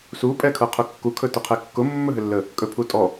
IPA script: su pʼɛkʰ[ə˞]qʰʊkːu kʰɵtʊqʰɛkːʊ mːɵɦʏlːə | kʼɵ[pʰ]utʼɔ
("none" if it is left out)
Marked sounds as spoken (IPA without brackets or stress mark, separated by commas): ɤ, pʰ